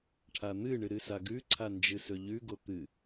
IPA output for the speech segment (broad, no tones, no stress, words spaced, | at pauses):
ʈʰan̪ɨɳɨ ɾɨsaɡʉǀʰa nd͡ʒɨsɵʎʉɡo t̪ɨ